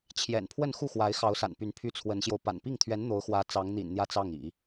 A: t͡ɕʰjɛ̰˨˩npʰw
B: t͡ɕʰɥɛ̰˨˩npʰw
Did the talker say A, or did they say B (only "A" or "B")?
A